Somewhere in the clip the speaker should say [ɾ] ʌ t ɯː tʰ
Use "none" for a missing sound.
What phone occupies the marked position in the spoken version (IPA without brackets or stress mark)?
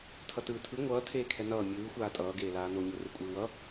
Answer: tʰ